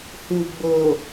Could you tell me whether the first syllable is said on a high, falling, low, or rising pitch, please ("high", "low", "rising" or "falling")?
low